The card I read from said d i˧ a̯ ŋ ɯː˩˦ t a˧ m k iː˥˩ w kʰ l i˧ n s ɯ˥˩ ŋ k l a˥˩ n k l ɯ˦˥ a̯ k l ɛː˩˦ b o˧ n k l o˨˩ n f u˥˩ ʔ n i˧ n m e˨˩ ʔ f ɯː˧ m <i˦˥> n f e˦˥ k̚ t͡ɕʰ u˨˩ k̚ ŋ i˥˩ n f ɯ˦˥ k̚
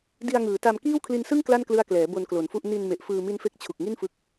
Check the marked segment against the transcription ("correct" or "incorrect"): correct